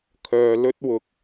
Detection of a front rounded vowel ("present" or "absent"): present